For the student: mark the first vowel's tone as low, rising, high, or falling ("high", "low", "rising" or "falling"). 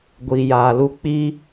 low